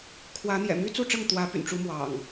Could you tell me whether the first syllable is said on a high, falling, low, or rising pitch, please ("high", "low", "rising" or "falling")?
rising